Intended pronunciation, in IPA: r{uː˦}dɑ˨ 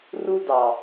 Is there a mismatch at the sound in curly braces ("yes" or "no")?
yes